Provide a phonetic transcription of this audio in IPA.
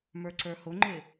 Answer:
m ə˞ ǀ ə˞ h ʊ ŋ͡ǃ ɪ

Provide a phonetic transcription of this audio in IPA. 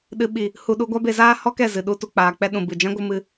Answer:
ɗ ɨ˨ ɓ i˨ | h u˧ ɗ u˧ ɡʷ a˦ b e˧ z aː˦ h ɔ˦ k ɛ˦˨ z ɨ˨ ɗ u˧ t u˨ k͡p aː˨ k͡p ɛ˧ ɗ ũ˨ b ɨ˨ d͡ʒ ã˦ ɡʷ ɨ˧ m ɨ˧

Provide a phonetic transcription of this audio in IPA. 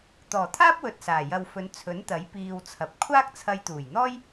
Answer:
t̪ ɔː˨˩ t̪ʰ aː˥ p̚ w ɵ˧ t̚ s aː˨˩ j ɐ˧ w f ɵ˨˧ n t͡sʰ ɵ˨˥ n t̪ ɐ˨˥ j p iː˧ w t͡sʰ ɐ˨˥ p̚ kʷʰ aː˥ k̚ t͡sʰ ɐ˧ j t̪ uː˨˩ j n̪ ɔː˥ j

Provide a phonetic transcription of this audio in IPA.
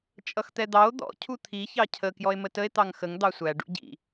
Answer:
t͡ʃʼ ʌ x t̪ ɛ d̪ ɑ o̯ d̪ ɔ̰ cʰ u t̪ʰ i ç ɑ cʰ ə k j ɔ e̯ m ə t ə e̯ t̪ ɑ ŋ x ə ŋ d̪ ɑ sʷ æ ɖ ṵ ɟ ḭ

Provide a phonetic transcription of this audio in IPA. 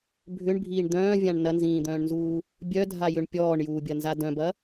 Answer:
bʱ ʏ ɳ bʱ iː ɳ d̪ œ̃ː vʲ ã ɳ n ɐ n z ĩː d̪ œ̃ː ɳ n z uː | bʲ œ dʱ a j ʏ ɳ pʲ ɔː ɳ j uː bʲ ɐ n z a d œ̃ b ɐ

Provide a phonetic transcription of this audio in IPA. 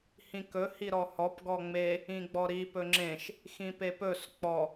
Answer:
h ĩ k ɵ h i ɾ ɔ h ɔ p ɡ ɔ ŋ͡m e | ĩ ɡ͡b ɔ ɾ i p ɵ ŋ͡ǁ ẽ ʃ | x ĩ p e p ɵ s k͡p ɔ

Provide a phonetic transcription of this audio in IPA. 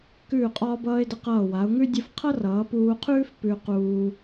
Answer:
k ʉː˧˩ qʼ ɒː˧ b ʌː˧ ɪ̯ d ə˧ q ʌː˧˩ w a˩˧ ʊ̯ ŋ ʉ˥ dʲ ə˥˧ f qʰ ʌ˥ r ʌː˩˧ p uː˧ qʰ ʉː˥ f p ʉ˧ q uː˧

